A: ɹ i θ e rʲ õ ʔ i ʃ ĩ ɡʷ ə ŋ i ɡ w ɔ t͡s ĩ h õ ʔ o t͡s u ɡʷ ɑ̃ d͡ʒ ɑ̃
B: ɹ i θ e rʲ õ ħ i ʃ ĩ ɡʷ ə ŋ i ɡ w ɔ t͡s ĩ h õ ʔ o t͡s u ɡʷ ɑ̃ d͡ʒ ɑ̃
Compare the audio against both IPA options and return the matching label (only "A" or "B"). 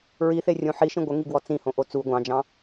B